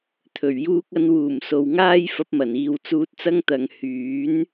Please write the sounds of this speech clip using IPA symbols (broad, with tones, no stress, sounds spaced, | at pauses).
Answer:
t̪ʰ ɵ˨˩ ɥ j uː˧ k̚ ɐ˨˧ n w uː˨˩ m s o˨ w ŋ aː˥ j f ɐ˨˥ p̚ m ɐ˨˩ n iː˨ w t͡s uː˧ t̚ t͡s ɐ˥ ŋ t̪ ɐ˨˧ ŋ h yː˨˥ n